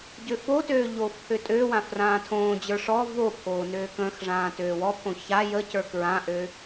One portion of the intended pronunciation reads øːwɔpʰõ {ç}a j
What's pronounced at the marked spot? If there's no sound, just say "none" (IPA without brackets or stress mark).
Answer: ç